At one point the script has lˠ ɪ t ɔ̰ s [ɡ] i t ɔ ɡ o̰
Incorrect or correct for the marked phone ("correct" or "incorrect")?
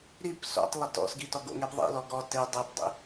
correct